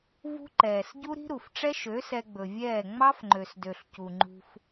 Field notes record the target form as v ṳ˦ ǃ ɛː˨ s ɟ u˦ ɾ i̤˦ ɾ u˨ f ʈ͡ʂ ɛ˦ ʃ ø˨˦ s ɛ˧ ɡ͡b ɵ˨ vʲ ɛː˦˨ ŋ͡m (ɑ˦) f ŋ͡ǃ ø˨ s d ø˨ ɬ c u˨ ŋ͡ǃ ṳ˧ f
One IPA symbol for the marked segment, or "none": ɑ˦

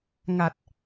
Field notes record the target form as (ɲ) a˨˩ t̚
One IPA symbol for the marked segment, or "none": ŋ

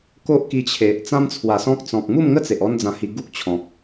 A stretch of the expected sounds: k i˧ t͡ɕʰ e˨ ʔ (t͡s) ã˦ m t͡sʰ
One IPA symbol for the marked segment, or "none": t͡s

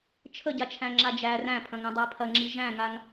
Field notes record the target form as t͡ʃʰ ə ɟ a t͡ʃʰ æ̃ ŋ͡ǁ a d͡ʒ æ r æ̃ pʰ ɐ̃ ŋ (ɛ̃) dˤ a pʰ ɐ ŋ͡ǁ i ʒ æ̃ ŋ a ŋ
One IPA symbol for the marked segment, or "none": æ̃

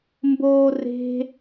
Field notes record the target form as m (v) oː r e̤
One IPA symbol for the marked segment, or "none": b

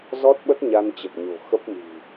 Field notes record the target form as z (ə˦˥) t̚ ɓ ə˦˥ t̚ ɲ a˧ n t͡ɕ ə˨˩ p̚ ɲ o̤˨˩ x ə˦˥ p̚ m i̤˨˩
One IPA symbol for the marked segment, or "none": ɔ˦˥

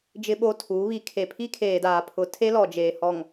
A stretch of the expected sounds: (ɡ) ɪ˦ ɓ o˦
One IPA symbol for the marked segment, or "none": d͡ʒ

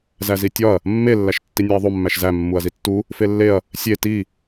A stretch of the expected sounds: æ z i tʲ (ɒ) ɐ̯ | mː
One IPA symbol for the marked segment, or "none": ɒ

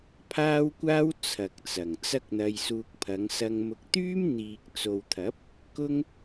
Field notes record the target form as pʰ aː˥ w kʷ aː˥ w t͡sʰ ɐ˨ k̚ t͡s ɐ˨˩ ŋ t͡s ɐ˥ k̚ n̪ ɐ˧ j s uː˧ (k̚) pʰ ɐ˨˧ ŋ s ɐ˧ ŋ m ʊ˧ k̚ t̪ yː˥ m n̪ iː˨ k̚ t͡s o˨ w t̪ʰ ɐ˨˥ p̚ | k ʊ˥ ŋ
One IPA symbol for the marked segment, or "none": k̚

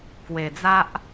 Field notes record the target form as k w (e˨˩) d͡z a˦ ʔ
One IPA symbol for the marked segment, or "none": e˨˩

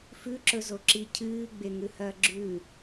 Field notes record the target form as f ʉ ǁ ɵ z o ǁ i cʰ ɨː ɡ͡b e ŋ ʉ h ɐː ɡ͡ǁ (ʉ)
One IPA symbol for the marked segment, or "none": ʉː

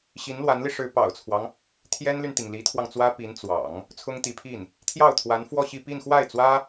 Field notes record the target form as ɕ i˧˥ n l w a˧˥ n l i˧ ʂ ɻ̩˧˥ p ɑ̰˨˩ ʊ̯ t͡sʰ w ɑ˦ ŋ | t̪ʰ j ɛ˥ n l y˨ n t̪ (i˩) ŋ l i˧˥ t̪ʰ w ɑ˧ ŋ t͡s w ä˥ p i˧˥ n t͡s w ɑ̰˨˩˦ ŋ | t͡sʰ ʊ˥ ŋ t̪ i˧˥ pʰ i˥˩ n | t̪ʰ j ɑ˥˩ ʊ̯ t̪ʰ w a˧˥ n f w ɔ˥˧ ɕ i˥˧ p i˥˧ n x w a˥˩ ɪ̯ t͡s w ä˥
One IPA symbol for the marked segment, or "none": i˩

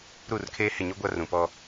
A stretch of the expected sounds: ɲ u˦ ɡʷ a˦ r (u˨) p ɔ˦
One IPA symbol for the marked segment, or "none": ũ˨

